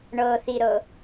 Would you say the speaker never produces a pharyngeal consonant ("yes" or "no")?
yes